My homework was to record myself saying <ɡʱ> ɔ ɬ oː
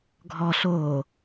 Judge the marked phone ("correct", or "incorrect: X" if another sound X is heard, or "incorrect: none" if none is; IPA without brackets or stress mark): correct